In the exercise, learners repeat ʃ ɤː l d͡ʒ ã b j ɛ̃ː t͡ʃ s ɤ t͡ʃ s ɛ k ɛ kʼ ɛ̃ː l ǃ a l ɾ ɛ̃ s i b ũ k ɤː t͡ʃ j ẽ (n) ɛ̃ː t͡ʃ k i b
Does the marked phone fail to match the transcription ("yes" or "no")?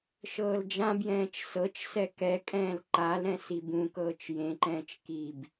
yes